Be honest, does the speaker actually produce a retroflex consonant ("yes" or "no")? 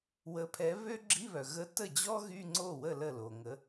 no